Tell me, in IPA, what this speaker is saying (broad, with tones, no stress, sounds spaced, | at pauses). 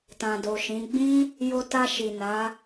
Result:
t ã˨ d o˨ ʃ ĩ˨˦ ɡ͡b ĩ˦ | j o˧ t a˧ ʃ i˨ n a˨˦